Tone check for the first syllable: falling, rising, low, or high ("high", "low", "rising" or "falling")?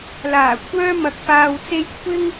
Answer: low